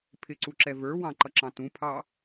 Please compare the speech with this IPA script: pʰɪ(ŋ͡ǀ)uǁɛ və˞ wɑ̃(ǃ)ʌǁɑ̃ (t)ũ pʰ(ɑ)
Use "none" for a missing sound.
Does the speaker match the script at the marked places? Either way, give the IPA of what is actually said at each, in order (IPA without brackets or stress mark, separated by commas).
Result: ǀ, ǃ, t, ɑ